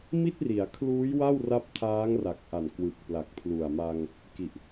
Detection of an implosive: absent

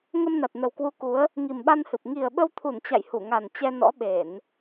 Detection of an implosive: present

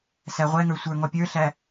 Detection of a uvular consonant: present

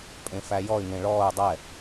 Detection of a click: absent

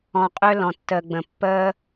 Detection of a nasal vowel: present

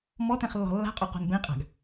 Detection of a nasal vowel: present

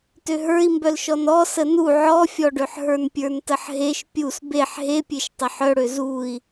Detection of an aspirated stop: absent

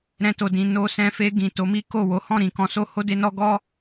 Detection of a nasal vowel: present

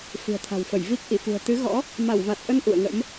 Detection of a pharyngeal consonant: absent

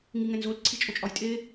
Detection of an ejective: present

